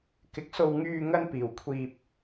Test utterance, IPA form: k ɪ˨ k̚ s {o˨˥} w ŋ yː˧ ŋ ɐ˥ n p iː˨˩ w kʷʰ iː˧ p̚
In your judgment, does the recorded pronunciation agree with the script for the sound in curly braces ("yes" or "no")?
no